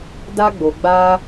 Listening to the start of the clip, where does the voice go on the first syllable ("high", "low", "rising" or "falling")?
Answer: high